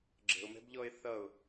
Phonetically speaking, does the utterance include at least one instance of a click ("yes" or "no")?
yes